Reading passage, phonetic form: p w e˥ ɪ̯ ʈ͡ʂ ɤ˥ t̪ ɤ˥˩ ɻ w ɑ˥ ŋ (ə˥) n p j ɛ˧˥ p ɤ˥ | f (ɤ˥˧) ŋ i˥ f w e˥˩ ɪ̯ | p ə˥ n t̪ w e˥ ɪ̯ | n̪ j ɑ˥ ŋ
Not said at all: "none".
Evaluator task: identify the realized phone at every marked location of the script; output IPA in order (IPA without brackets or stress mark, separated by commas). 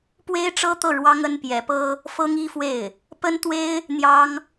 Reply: ə˥, ɤ˥